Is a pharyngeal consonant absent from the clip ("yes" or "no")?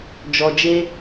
yes